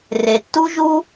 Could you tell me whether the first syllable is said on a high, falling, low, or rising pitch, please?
low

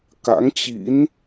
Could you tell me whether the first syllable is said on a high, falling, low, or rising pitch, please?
rising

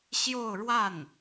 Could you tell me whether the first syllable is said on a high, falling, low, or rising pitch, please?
falling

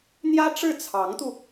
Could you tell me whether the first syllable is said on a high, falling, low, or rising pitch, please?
high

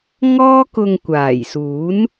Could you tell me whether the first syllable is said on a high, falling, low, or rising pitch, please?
high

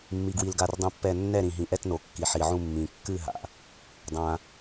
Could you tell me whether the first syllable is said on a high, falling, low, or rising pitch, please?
low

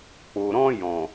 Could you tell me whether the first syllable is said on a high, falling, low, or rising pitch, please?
low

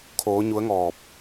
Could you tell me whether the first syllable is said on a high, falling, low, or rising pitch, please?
rising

